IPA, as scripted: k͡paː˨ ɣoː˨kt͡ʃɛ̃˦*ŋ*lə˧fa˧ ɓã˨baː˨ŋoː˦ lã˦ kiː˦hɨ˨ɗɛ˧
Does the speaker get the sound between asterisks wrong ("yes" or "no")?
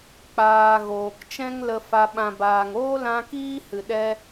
no